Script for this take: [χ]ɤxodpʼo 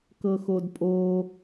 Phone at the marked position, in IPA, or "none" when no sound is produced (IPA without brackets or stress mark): k